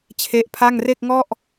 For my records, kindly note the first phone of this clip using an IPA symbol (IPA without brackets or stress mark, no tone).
t͡ɕʰ